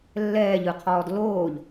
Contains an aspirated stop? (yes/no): yes